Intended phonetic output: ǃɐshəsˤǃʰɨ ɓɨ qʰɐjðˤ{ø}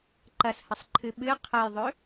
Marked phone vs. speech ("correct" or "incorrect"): correct